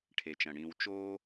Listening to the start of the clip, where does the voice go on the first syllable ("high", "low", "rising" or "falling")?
low